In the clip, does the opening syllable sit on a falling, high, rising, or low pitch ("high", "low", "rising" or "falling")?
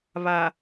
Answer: low